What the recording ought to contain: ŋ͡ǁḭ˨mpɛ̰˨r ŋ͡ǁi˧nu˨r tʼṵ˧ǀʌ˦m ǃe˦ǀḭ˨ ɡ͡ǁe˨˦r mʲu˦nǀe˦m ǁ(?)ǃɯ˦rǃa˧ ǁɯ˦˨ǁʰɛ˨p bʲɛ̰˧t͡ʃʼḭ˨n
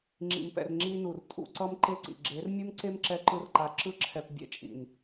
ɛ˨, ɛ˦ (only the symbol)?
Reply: ɛ˦